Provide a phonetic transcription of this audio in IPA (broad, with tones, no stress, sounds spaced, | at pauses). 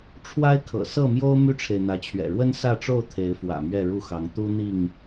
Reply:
ʈ͡ʂʰ w a˦ ɪ̯ kʰ ɤ̰˨˩ s ɤ˥˨ m j o˦ ʊ̯ m y˦ ʈ͡ʂʰ e˨ ɪ̯ n̪ ä˨˦ t͡ɕʰ ɥ ɛ̰˨˩ ɻ w ə˦ n s ä˥˨ ʈ͡ʂ o˥˨ ʊ̯ t̪ʰ e˨˦ ɪ̯ f w ä̰˨˩ m ɥ ɛ˥˨ ɻ u˥˨ x ɑ˨˦ ŋ t̪ u˦ n̪ i˥˨ ŋ